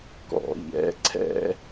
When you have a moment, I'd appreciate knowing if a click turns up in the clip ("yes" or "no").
yes